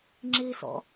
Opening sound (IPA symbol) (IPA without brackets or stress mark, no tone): ŋ͡ǁ